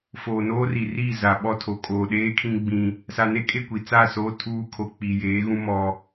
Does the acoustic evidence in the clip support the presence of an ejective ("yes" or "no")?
yes